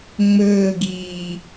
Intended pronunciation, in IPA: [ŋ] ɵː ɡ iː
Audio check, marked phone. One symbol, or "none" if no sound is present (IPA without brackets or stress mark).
ŋ͡m